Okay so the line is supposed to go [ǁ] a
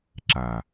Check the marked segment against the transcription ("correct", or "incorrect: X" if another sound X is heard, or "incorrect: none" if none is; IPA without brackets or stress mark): correct